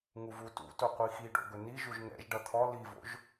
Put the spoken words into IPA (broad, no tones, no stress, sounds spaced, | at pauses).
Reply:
ŋ u v u t ṵ t o qʷ i x i ɖ o̰ ɡ ɵ n i ʒ u ʒ ŋ ɛ̰ ʒ ɖ ʌ t̪ʰ ɔ l i v o̰ ʒ